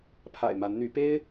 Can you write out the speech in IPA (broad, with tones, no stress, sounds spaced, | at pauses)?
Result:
pʰ a̰˨˩ ɪ̯ m a˨˦ n n̪ y˨˦ p e˦ ɪ̯